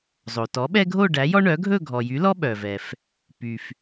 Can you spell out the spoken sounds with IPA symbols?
zˤ o˩ t ɔ˩˥ ɓ ɛ˦ ɡʱ o˥˨ ɖ æ˩˥ j ɔ˦ ɳ œ˩˥ ɡʱ ɵ˥˨ ɡʱ ɔ˩ j y˩˥ l ɔ˦ ɓ œ˩ v ɛ˩ f | p y˩ f

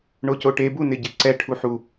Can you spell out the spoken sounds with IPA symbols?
ɳ o c o ʈ e b u n ɪ ɟ ɪ ǀ ɛ ʈʰ u ħ u

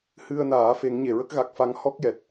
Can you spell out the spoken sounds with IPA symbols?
h ɨ˧ ə̯ n aː˨˩˦ f e˨˩˦ ŋ ɲ e˨˩˨ ɹ ə˦˥ k̚ ɣ a˨˩ k̚ f a˧ ŋ h ɔ˦˥ k̚ j ɛ˨˩ t̚

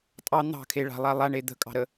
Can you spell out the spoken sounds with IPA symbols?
tʼ ɑ n̪ ɑ̤ kʰ e ɭ a̤ lˠ a lˠ a ɳ e d̪ ə̤ kʼ ɑ̤ ɾ ə

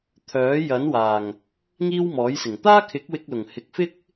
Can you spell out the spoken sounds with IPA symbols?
t̪ʰ œː˨˥ j ɐ˨˥ n w aː˨˩ ŋ | ŋ iː˥ w m ɔː˨˥ j s ɪ˨˩ ŋ t̪ aː˥ kʰ ɪ˨˥ k̚ w ɪ˧ k̚ l ʊ˨˩ ŋ h ɪ˨˥ k̚ f ɪ˥ k̚

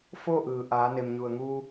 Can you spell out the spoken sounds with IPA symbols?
f oː˥˨ ʔ ɯː˩ ʔ aː˩˧ n e˩ m ɲ u˩ ə̯ ŋ u˧

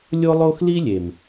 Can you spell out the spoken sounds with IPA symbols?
lʲ o˦ lˠ o˦ x l i˦ lʲ e˨ m

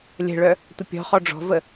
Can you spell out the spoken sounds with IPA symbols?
lʲ ə̤ ɭ œ | tʷ ə pʲ ɔ̤ χ ɔ ɖ͡ʐ ɔ̤ v ə

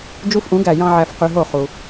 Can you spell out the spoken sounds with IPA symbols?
d͡ʒ u˦˥ f ʔ ũ˩˥ ɡ æ˧˩ j ɑ̃˧ ʕ æ˧ f q y˧ ɦ o˥˩ χ u˩

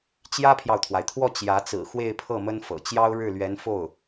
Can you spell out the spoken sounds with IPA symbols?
t͡ɕ j ä˥ pʰ j ɑ˨ ʊ̯ t̪ʰ w a˩ ɪ̯ t̪ʰ w ɔ˥˩ t͡ɕ j ä˧˥ t͡s ɹ̩˨˩ x w e˥˧ ɪ̯ pʰ ɤ˥˩ m ə˥ n f ɤ̰˨˩ t͡ɕ j ɑ˥ ʊ̯ ɻ ɻ̩˥˩ l ɥ ɛ˧˥ n f o˥˩ ʊ̯

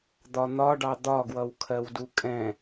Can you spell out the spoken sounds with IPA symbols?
d̪ ɒ n̪ ɒ ɖ ɑ d̪ ɒ ɡ w ʌ w kʰ ɜ w d u kʼ ɛ̃

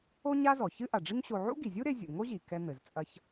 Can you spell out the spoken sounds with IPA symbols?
o˥ ɲ a˥ z ɔ˩ ç ɨ˥ ʔ a˩ ɖ͡ʐ i˥ ŋ ɕ o˧ ʕ ṵ˥ ɡ i˩ zʲ u˥ ɾ e˧ zʲ ṵ˩ ŋ o˥ ʑ i˩ k ɛ˧ n̪ ɘ˩ z t͡sʼ ɐ˧ ç

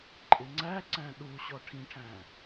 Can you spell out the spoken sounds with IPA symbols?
ǃʼ ɪ ŋ͡ǀ æ ǀ æ̃ ɗ u ɕ ɔ ʈʰ ĩ ʈʰ æ̃

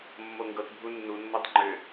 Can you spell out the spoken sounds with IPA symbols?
mː o ŋ ɡ ɤ t bʱ u nː u nː o tˤ ŋ͡ǃ ʏ

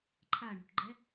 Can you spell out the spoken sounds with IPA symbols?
ǃʰ a ɳ ṳ ʈ ɡ͡ǃ ɛ

